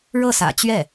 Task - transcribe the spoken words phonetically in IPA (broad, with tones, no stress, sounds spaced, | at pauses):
ɻ ɤ˥˩ s ä̰˨˩ t͡ɕ ɥ ɛ˥˩